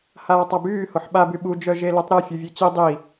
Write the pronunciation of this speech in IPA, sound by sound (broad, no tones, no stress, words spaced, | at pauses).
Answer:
haːtˤabyː hoħɓaby ɓud͡ʒœ ʒeløtˤɾe fʲuvʲøt͡ɕi dˤi